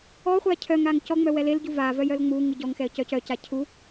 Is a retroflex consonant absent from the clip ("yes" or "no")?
yes